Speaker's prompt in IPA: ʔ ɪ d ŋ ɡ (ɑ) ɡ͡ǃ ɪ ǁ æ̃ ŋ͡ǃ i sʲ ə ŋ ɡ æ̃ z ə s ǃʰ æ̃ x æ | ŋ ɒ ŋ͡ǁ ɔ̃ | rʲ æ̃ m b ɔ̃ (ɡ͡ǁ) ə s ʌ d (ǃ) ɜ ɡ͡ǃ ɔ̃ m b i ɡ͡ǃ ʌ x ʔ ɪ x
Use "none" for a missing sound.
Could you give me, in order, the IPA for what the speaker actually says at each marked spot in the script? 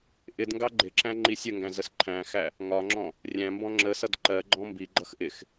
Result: ɑ, ŋ͡ǁ, ǃ

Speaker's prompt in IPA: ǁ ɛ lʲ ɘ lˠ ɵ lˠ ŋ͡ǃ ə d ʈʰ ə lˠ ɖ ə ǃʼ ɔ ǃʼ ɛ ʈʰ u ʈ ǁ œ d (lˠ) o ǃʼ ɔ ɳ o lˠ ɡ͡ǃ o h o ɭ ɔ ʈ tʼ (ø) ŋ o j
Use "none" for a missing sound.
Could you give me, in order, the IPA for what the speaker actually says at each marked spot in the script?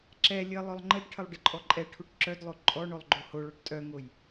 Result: lˠ, œ

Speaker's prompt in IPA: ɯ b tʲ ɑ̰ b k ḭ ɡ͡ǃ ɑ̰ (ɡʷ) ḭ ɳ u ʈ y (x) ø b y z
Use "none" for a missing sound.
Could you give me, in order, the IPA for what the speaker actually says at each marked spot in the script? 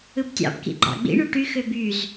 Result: ɡ͡b, x

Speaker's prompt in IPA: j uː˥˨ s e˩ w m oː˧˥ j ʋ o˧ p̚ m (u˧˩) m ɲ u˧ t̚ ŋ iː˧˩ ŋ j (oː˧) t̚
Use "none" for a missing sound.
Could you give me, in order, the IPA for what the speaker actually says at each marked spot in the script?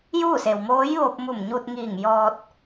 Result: u˧˩, ɔː˧

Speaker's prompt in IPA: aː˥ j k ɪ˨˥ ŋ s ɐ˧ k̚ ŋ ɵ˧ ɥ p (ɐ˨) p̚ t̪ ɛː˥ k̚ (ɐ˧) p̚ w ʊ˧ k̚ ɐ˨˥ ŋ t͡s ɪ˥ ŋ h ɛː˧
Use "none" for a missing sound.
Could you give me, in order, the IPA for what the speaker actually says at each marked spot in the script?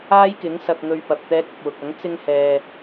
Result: ɐ˨, ɐ˧

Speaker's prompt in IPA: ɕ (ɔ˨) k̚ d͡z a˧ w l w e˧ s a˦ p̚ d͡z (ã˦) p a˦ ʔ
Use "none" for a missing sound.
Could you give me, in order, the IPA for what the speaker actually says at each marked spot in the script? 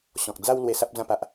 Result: ɔ̃˨, ã˥˧

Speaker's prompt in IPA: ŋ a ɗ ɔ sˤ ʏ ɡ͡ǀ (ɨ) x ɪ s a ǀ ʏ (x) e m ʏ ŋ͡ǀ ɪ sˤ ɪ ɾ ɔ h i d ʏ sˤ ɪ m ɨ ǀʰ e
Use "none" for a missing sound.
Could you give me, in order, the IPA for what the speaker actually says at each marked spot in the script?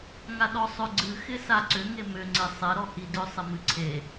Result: ɨ, ŋ

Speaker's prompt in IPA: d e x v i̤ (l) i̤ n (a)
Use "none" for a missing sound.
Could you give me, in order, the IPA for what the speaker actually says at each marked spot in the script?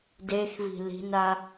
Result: l, a

